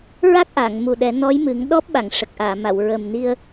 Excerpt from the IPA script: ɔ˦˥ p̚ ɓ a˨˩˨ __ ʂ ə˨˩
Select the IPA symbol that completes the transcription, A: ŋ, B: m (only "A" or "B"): A